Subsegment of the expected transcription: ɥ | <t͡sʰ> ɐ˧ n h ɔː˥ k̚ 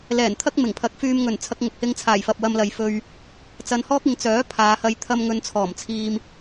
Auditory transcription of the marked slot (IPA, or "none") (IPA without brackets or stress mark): t͡s